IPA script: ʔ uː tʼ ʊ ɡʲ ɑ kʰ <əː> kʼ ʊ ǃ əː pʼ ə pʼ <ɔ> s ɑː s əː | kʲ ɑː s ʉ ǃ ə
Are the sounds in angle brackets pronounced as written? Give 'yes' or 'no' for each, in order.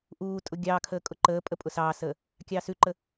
yes, no

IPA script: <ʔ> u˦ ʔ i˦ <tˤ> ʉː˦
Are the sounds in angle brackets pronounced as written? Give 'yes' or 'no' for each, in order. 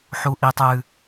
no, yes

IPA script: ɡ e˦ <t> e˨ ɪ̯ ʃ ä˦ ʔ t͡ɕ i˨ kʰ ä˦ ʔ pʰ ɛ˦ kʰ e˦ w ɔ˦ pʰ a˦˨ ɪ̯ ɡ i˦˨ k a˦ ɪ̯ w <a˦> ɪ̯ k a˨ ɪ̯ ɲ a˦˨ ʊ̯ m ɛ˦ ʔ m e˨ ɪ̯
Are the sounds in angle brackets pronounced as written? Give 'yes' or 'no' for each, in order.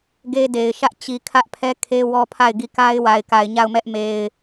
no, no

